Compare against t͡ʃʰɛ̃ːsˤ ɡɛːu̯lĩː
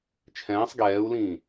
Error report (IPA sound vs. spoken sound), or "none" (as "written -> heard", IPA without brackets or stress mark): none